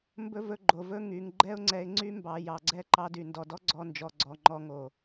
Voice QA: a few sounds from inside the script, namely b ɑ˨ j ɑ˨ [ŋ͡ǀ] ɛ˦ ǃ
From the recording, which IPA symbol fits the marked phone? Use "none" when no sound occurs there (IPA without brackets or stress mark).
ɡ͡ǀ